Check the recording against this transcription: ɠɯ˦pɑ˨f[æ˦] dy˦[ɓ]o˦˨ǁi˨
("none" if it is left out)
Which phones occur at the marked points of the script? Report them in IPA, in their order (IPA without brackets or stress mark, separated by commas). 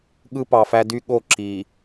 æ˦, ɠ